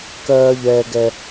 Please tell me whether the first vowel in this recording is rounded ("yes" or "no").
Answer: no